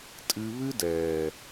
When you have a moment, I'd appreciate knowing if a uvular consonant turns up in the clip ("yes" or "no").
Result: no